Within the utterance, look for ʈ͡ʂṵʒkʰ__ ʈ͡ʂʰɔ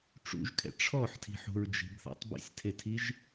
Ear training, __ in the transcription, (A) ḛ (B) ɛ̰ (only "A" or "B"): B